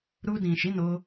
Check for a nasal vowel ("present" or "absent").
present